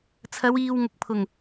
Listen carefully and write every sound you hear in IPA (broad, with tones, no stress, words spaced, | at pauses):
t͡sʰɐ˨˧wiː˨w ŋʊ˨k̚pʰʊ˨˩ŋ